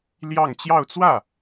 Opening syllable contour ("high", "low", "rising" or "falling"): falling